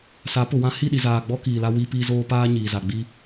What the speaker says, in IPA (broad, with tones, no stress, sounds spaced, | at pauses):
s a˨˦ p ʊ˨ w ã˦ h i˦˨ ɗ i˨ z aː˨ ɡ͡b ɔ˦ k iː˨ l a˦ w i˦ p iː˦ z oː˦ p aː˦ ɲ iː˨ z a˨ ɡ͡b i˦